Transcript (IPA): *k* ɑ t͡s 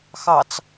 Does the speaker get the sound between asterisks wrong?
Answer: yes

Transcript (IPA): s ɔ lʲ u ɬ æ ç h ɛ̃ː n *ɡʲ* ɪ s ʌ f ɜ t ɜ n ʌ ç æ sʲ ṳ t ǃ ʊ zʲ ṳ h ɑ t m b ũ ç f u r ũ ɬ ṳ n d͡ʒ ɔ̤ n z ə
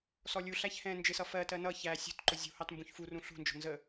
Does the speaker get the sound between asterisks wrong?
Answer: yes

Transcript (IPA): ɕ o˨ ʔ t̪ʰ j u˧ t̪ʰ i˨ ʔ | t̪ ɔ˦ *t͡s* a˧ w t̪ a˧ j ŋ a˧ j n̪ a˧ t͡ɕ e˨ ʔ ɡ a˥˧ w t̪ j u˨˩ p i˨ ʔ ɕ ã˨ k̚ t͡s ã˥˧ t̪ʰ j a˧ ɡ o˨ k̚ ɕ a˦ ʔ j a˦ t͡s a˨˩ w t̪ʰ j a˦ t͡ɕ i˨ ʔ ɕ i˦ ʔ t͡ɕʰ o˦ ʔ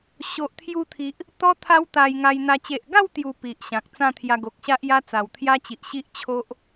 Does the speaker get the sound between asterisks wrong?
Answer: yes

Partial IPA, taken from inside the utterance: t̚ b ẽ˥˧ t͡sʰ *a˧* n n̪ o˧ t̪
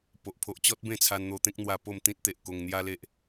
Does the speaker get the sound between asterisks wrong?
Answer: no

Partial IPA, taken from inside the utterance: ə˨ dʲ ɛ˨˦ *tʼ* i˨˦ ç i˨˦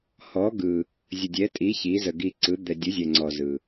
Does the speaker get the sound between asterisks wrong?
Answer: no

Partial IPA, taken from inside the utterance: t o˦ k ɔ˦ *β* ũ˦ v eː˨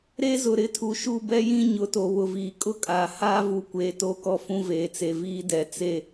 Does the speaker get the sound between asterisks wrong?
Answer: yes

